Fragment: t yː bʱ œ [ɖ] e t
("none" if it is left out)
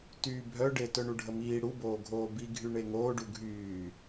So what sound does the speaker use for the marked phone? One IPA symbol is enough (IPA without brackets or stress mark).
ɖ